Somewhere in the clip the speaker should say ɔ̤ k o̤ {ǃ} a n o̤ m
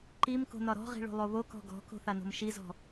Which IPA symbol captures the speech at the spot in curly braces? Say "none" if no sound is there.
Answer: θ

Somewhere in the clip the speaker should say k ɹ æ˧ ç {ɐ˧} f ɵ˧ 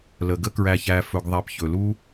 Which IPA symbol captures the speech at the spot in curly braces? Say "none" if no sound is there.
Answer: æ˧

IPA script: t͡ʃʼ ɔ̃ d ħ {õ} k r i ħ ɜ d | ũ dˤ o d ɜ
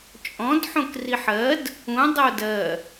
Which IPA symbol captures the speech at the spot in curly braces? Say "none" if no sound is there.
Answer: õ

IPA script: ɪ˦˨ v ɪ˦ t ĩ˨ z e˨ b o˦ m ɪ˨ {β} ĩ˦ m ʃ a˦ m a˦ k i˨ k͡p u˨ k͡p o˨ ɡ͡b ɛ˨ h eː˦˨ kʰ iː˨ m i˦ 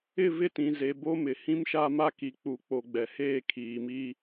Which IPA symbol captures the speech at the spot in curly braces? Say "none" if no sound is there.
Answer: h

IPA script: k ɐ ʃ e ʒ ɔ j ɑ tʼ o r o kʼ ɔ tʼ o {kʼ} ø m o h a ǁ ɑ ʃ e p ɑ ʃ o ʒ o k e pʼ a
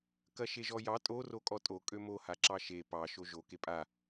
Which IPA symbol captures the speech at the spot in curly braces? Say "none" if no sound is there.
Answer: kʼ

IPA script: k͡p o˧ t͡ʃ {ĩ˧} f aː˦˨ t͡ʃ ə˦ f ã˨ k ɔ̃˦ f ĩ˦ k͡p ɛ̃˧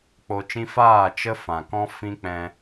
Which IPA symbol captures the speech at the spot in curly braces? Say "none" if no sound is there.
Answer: ĩ˦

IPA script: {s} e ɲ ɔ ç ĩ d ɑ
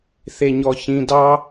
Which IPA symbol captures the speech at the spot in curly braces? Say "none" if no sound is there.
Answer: θ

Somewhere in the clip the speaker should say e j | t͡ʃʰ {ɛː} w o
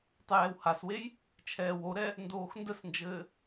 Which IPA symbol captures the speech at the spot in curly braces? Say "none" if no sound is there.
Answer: ɛː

